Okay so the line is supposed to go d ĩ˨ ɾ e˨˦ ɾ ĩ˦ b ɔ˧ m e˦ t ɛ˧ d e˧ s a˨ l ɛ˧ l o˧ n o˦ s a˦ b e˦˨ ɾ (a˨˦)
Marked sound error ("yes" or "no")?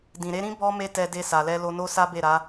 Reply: no